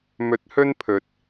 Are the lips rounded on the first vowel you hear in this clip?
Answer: yes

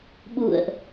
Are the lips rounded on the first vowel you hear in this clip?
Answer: yes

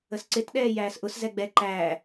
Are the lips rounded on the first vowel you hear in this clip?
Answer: no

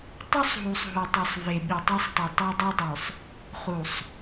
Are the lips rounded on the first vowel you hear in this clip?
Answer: yes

